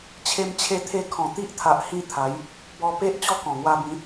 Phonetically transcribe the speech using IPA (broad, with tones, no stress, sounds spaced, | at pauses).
t͡ɕʰ e˧ m t͡ɕʰ e˧ t̪ʰ e˧ kʰ ɔ̃˨˩ t̪ i˦ ʔ t̪ʰ a˨ ʔ h ĩ˥˧ t̪ʰ a˨˦ j | b ɔ˧ p e˦ ʔ t͡ɕ ɔ˥˧ k ɔ̃˨˩ ŋ w a˧ b ĩ˨˦